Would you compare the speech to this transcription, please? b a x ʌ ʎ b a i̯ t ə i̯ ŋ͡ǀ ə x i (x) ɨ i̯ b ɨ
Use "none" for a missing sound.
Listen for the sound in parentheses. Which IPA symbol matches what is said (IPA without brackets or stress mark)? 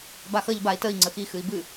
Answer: x